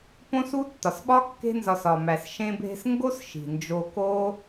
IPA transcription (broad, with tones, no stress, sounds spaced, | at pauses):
p õ˥ s u˥ tː ɒ˩ s ɓ ɒ˥ kː e̤˥ n z ɒ˧ s ɒ˩ m æ˩ s ʃ ẽ˧ bʱ e̤˧ s ŋ ɡ o˥ s ʃ i̤˩ n d͡ʒ o˧ k oː˥